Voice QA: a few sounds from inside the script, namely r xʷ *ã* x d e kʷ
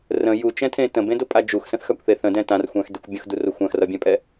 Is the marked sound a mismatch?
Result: no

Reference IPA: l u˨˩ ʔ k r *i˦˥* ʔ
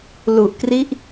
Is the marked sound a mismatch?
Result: no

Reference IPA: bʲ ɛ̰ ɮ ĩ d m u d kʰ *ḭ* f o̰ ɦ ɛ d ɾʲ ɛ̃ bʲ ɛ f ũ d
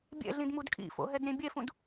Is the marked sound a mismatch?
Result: no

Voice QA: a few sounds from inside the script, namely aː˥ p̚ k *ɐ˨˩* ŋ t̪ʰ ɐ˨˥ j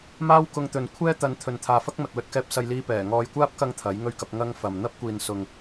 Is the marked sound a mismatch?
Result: yes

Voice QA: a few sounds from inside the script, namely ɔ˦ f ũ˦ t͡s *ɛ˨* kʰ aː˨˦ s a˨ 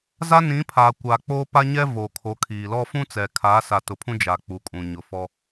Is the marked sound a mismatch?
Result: no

